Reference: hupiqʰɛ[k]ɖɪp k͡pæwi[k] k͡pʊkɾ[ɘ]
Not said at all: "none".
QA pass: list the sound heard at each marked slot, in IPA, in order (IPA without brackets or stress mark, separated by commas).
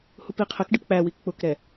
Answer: k, k, ɛ